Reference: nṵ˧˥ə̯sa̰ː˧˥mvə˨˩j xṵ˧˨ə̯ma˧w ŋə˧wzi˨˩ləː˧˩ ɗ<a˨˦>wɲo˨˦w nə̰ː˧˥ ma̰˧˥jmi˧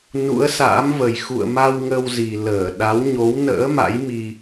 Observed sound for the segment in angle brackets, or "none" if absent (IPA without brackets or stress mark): a˨˦